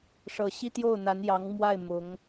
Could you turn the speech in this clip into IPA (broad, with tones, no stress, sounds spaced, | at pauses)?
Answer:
ʂ ɤ˨˩ ɕ i˥˧ t̪ j o˥˩ ʊ̯ n̪ a˧˥ n j ɑ˧˥ ŋ m w a˥˩ ɪ̯ m ʊ˧˥ ŋ